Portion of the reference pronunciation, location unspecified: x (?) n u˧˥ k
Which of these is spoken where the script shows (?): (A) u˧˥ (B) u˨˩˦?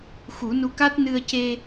B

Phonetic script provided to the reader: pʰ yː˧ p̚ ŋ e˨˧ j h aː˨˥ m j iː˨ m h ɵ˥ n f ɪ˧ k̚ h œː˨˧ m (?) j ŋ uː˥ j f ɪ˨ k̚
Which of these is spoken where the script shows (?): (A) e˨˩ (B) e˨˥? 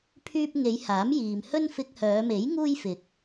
B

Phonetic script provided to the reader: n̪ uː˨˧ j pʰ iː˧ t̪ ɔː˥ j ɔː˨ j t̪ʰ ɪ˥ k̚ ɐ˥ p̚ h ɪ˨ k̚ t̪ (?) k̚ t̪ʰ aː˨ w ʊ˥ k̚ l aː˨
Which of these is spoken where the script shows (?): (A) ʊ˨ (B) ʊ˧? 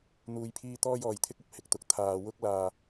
B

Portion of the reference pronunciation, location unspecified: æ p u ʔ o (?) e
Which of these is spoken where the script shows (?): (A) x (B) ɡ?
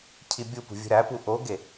B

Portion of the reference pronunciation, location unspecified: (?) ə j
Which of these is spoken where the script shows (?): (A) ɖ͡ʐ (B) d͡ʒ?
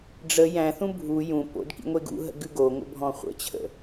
A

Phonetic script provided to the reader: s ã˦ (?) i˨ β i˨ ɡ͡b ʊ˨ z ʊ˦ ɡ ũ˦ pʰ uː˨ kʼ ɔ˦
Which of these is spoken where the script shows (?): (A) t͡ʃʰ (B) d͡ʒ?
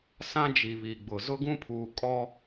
B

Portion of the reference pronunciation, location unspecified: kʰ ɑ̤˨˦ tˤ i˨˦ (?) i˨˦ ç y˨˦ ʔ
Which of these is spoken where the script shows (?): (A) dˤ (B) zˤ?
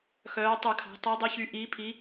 A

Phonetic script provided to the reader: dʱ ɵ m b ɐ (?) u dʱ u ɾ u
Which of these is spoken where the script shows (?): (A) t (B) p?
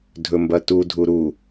A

